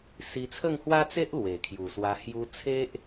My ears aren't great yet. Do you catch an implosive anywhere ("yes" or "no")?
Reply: no